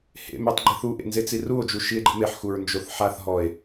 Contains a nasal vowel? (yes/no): no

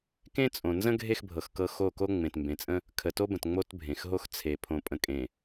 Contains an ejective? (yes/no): yes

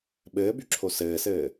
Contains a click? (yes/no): yes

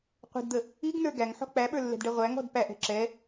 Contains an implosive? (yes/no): yes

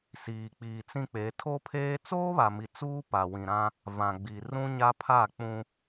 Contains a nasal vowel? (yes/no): yes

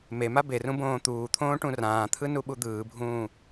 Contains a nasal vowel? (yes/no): yes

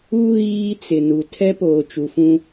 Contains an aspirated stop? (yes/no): yes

